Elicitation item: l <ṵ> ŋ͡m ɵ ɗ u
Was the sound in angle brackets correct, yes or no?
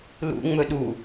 yes